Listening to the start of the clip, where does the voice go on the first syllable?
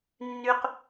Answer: high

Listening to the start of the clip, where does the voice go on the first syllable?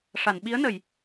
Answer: low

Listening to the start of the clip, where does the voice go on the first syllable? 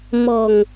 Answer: low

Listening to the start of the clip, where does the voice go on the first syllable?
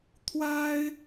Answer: high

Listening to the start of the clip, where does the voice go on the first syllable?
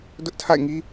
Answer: high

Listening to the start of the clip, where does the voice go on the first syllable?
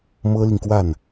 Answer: high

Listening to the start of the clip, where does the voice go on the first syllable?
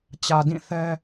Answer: low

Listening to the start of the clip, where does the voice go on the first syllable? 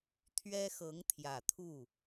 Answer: high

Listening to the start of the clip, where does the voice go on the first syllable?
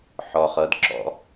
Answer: low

